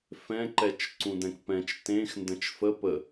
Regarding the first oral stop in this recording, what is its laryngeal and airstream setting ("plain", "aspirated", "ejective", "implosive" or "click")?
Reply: click